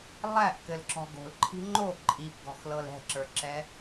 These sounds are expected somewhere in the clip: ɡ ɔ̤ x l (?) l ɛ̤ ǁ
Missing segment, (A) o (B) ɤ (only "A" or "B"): B